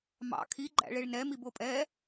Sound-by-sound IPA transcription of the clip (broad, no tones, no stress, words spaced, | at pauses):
mɑ̰ kʰiɡ͡ǃæ̰ɭeɭ nɛ mibopʼɛ